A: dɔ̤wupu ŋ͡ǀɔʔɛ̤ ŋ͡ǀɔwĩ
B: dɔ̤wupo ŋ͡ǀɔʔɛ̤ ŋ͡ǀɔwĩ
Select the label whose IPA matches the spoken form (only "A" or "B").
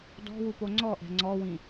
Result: B